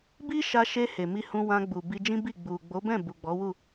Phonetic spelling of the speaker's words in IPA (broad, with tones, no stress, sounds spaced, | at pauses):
b i˦ ʃ a˧ ʃ e˧ h e˨ m i˧ h ũ˧ w ã˧ ɡ͡b u˨ b i˧ d͡ʒ ĩ˦ b i˦˨ ɡ͡b u˨ ɡ͡b o˨˦ b ɛ̃˦˨ b u˨ ɡ͡b ɔ˨˦ w u˦˨